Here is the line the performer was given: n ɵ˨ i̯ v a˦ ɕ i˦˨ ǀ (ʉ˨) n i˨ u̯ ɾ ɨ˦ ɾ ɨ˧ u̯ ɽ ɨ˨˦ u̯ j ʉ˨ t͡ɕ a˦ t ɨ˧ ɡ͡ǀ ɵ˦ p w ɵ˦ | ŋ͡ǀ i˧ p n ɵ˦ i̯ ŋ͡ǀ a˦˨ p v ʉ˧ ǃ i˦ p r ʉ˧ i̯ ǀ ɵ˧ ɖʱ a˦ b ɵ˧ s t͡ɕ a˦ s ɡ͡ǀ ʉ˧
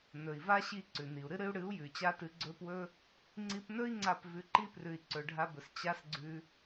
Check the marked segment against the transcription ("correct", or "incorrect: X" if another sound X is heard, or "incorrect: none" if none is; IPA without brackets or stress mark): correct